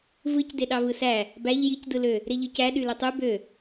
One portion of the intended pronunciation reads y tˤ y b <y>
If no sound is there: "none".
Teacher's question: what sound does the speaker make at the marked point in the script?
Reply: ø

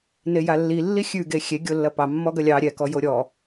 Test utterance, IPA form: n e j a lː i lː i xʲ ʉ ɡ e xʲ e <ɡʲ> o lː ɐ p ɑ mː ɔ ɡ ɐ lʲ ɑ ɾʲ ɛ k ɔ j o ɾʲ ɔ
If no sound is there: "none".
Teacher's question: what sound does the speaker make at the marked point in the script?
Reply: ɡʲ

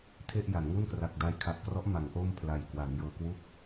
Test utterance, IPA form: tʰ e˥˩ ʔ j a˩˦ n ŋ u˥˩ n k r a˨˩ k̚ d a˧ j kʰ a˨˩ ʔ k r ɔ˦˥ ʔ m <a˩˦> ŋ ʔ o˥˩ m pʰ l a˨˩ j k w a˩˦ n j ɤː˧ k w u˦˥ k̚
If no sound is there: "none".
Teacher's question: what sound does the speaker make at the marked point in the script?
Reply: a˩˦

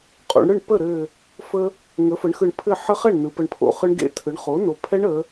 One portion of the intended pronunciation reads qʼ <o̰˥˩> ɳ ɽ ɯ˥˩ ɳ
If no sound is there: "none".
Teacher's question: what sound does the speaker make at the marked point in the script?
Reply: o̰˩˧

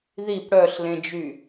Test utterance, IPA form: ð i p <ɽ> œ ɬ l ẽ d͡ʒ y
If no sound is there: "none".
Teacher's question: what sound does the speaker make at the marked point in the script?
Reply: ɽ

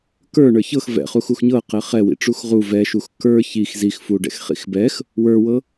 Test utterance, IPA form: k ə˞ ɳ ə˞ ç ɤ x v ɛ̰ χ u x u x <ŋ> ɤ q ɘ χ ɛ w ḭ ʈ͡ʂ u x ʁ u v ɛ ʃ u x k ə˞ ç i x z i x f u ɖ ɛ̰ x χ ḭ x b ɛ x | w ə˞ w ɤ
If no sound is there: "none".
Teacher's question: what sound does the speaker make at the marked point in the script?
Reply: ɲ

